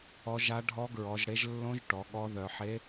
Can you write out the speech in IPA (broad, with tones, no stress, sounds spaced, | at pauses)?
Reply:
ɔ˧˥ ʒ a˧˥ ɖʱ ɔ˧˥ ɡ ɹ ɔ˩˧ ʒ ɽ e˧˥ ʒ lː õ˧˥ ʒ ʈ ɔ˩˧ ɠ ɔ˧˥ ð œ˩˧ ħ e˧˥